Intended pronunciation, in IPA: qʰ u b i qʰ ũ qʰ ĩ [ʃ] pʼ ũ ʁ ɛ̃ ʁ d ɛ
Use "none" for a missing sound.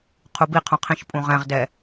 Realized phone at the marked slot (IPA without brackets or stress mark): ʃ